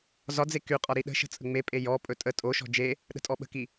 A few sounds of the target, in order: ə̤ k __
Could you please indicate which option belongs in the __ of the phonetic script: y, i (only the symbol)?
i